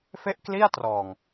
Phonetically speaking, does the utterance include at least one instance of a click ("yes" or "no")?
no